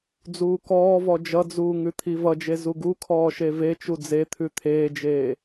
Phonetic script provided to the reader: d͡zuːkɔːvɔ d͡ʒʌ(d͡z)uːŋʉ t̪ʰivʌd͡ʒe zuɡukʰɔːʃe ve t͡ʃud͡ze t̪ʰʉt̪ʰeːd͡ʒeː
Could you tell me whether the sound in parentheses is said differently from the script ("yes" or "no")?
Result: no